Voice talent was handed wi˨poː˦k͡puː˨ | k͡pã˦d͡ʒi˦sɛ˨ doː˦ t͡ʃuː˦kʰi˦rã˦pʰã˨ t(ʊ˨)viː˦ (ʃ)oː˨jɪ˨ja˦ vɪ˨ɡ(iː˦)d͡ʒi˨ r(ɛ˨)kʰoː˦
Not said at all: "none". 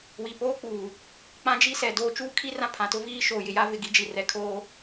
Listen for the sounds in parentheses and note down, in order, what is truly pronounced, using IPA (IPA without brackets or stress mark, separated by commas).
ʊ˦, ʃ, i˦, ɛ˨